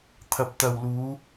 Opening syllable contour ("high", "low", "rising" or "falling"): low